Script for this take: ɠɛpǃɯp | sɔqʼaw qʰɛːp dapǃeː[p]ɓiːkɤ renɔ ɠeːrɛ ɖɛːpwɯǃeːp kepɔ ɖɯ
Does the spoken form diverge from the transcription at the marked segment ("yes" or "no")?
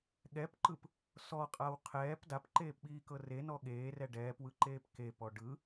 no